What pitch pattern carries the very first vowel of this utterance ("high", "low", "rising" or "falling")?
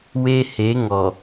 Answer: high